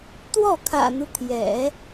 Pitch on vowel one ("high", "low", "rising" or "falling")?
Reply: falling